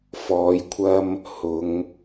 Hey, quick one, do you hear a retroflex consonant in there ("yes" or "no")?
no